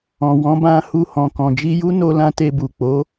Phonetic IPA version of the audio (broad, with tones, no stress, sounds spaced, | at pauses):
ɔ̃˨ w ɔ̃˨˦ b ã˧ h u˧ h ɔ̃˨ k ɔ̃˨ d͡ʒ i˧ j u˦ n o˧ l ã˧ t e˧ b u˨ k͡p o˨˦